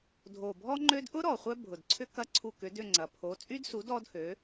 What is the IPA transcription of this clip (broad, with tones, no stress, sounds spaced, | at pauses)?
dʱ o˨˩ bʱ ɔ˥ ŋ͡ǃ ø˥ d ʔ ʊ˥ ɾ ɔ˨˩ χʷ œ˥ bʱ ʊ˨˩ d ǀʰ ʏ˥ k ɐ˥ ǀʰ u˦˨ k ʏ˨˥ d ʏ˦˨ ŋ͡ǀ ɐ˨˩ pʰ o˨˥ t͡sʼ y˥ d s u˨˥ d ɔ˥ d h ø˨˥